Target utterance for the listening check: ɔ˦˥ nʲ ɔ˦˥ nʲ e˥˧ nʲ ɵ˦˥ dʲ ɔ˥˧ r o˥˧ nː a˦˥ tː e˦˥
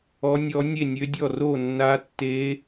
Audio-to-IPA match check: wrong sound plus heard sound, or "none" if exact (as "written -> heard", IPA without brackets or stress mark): ɵ˦˥ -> ø˦˥